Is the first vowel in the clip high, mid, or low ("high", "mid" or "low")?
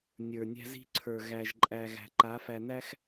mid